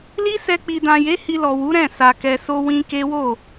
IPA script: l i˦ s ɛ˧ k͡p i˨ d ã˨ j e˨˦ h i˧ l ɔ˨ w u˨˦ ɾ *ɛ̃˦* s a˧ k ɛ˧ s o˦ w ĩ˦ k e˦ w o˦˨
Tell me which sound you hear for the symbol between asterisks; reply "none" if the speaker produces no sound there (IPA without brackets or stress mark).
ɛ̃˦˨